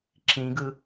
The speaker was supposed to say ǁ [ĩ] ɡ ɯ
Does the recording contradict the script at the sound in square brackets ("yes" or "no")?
no